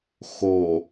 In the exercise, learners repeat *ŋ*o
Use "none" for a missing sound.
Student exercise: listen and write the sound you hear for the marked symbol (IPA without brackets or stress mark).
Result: x